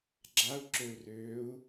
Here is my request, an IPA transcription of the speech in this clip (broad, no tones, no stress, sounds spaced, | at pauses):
ɡ͡ǁ a u̯ ǁ ø u̯ r øː u̯